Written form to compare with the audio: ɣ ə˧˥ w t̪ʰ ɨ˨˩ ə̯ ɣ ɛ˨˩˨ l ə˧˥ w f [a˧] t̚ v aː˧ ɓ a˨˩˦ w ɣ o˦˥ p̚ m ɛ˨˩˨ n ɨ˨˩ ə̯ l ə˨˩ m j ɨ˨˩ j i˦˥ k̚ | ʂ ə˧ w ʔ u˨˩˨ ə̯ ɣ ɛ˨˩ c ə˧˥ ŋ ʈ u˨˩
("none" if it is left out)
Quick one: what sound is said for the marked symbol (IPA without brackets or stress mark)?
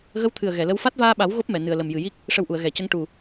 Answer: a˦˥